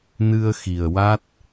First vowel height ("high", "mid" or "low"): high